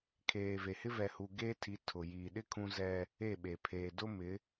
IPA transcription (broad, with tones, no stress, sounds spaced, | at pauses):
kʰ eː˨ v e˨ h ɪ˦ v ɛ˨ h u˨ ɡ eː˦ tʰ i˨˦ tʰ ʊ˨ j iː˨ ɗ ɪ˦ kʰ ũ˦ z ɛ˦ | e˦˨ ɓ e˨ pʰ eː˨ d ʊ˦ m ɪ˨˦